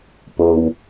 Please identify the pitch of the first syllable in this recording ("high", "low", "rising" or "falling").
low